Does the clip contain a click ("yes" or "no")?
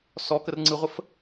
yes